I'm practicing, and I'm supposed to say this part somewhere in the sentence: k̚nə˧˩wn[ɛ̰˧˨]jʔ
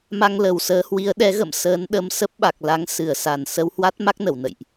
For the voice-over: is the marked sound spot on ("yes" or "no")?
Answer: no